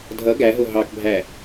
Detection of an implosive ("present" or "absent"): absent